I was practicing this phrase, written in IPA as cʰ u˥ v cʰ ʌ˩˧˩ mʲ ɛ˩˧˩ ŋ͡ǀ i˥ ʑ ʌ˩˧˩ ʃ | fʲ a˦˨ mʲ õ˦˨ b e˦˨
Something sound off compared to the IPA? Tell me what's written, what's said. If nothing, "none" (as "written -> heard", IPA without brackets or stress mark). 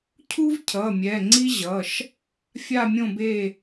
none